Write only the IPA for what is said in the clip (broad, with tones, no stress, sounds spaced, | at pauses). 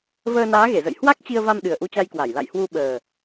v əː˧ n aː˨˦ ɣ e˧˩ z ə̰˧˨ j h w a˦˥ k̚ t͡ɕ i˧ ə̯ v a˧ m ɗ ɨ˨˩ ə̯ ʔ u˧ t͡ɕ a˧ j k w a˧˩ j l a̰˧˨ j h w u˧ ɓ əː˨˩